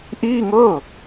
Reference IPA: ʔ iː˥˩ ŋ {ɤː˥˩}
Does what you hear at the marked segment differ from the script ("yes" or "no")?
no